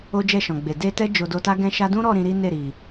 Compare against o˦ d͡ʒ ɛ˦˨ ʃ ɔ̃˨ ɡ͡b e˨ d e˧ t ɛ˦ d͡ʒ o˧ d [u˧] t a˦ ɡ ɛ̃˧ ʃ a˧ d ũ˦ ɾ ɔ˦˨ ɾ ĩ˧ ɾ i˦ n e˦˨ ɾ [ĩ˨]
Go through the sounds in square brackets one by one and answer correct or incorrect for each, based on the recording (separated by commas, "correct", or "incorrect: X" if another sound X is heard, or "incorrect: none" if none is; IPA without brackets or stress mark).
incorrect: o˧, incorrect: i˨